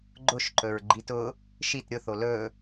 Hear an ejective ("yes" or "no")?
no